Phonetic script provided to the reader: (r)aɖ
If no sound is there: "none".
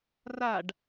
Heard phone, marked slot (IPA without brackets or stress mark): r